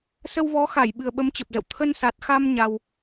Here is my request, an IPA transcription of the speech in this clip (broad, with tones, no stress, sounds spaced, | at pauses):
s ə˧ w v ɔ˨˦ x a˧˩ j ɓ ɨ˨˩ ə̯ ɓ ə˨˦ m t͡ɕ ə˨˩ p̚ z ə̰˧˨ w t̪ʰ ə˧ n s a˨˩ t̚ x a˧ m ɲ a˧ w